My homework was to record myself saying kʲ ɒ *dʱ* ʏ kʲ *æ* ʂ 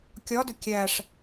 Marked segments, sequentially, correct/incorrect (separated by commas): incorrect, correct